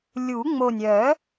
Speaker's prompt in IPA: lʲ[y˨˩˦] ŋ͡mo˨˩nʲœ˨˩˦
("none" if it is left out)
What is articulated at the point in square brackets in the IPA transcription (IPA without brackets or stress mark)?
u˨˩˦